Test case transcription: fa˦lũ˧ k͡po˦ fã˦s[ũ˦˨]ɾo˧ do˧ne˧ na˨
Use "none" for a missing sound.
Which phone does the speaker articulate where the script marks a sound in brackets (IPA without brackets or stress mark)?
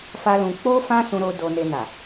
ũ˧